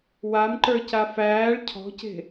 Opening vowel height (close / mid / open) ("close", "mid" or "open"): open